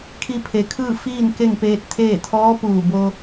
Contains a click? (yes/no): no